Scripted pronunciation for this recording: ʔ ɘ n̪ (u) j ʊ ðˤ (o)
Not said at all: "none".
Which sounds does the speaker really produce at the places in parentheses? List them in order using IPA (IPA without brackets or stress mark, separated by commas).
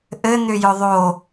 ʏ, o